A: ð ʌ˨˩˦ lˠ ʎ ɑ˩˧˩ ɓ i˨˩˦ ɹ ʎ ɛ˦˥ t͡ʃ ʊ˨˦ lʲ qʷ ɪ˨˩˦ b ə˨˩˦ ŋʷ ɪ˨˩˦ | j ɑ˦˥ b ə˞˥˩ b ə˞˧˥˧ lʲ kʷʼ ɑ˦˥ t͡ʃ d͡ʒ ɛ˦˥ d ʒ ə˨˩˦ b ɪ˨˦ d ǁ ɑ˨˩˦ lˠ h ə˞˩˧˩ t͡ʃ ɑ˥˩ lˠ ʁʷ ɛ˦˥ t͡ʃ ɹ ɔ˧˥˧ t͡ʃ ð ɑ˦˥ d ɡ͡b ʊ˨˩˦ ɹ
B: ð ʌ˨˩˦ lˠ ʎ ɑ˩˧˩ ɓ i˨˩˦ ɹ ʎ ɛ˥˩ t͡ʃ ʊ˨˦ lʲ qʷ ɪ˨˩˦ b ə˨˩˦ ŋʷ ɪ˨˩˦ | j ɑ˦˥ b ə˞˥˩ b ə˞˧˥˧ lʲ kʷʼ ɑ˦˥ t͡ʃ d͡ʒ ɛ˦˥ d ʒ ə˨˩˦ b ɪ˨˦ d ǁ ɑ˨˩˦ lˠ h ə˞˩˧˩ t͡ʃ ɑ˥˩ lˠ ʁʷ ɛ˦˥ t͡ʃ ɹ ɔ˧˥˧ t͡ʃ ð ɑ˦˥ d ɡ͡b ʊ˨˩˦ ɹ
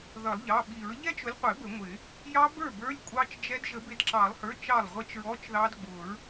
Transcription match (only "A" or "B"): A